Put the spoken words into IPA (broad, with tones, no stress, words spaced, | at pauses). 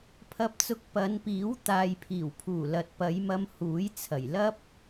pʰɐ˧p̚t͡sʊ˧k̚ pɐ˨˧npiː˨˥w t̪aː˨jpʰiː˨˩wpʰuː˨˩ lɐ˨t̚pɐ˨˧jmɐ˧m huː˨˥jt͡sʰɐ˨˩j lɐ˥p̚